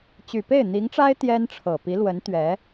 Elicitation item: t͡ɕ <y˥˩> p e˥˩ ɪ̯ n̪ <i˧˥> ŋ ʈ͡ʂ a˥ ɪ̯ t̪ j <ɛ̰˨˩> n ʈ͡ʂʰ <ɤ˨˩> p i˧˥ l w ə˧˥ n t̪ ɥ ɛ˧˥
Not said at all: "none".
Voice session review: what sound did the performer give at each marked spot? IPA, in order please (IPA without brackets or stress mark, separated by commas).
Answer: y˨˩, i˧˥, ɛ˥, ɤ˨˩